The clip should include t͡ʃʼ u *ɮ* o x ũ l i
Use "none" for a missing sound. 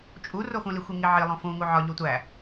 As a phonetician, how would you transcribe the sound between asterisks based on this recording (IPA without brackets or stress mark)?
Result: r